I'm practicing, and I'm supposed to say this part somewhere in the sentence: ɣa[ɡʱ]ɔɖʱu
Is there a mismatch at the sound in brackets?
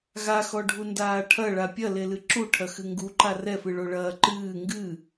yes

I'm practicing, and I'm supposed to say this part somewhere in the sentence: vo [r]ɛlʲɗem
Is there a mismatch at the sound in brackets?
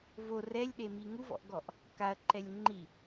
no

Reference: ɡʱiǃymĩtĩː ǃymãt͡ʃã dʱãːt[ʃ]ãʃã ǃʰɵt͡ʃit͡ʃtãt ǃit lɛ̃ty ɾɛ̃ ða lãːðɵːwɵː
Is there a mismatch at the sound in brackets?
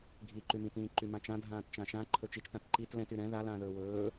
yes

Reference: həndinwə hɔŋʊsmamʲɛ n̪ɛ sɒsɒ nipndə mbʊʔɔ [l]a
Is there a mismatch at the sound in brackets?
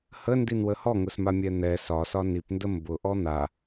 yes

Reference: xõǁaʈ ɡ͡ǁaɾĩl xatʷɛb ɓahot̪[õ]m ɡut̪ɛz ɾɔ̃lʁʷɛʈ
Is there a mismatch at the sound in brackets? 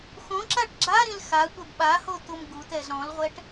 yes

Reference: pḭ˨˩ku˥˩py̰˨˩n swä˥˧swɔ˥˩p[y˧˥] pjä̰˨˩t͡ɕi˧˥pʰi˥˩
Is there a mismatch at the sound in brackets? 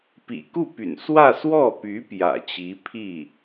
no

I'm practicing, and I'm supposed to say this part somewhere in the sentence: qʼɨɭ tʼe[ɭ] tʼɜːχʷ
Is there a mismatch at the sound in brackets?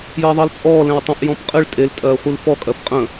yes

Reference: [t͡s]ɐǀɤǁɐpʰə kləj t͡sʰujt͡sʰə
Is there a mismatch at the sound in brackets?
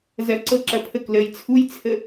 yes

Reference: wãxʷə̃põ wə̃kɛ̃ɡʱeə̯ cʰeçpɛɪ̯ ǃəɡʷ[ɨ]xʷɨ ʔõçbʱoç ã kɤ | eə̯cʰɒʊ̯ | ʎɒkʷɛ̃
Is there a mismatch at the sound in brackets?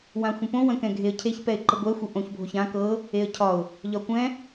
yes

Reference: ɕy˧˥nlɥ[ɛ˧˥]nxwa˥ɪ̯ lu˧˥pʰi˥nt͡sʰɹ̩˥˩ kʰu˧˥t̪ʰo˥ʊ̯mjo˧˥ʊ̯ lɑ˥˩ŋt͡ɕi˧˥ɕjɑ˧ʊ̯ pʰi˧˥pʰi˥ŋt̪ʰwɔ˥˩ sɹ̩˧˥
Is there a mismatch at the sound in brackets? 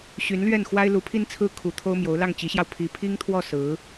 yes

